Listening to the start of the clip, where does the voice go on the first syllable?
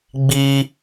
high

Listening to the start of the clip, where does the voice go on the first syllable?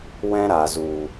high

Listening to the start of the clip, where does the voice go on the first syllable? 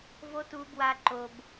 high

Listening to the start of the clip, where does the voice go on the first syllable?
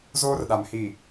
high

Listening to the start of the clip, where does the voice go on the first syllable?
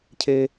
high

